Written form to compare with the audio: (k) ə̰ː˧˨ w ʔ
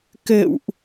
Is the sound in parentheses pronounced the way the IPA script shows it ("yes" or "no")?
yes